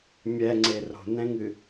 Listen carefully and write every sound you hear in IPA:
mʲ ɛ ŋ͡ǀ e r o̤ n ɛ̃ ŋ ɨ

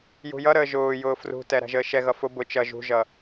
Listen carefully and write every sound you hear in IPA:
j ṳ j ʌ ɾ əː ʒ ʊː j ʊː f r ṳ t ɛ ɾ æ̤ ʒ əː ʃ ɛ ɣ ʌ f ʊ b ʊ t͡ʃ ʌ ʒ ṳ ʒ ʌ

